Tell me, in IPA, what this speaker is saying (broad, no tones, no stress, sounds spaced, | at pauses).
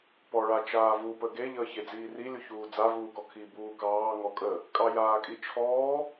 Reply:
p ɔ ɭ a t͡ʃ aː v u p ə ɡ e ʎ əː ç e d͡z iː r i lʲ u ç uː d͡z a v uː k ɔ kʰ i b uː k ɑː ŋ ɔ kʼ ə | kʼ ɑ j aː kʼ i t͡ʃʰ ɔː